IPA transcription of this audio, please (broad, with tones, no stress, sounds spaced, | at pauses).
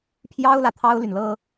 pʰ j ɑ˥ ʊ̯ l ä˨ t̪ʰ ɑ˥ ʊ̯ l y˨ n l ɤ˥